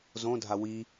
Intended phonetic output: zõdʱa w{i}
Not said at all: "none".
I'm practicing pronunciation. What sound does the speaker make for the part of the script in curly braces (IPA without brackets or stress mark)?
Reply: i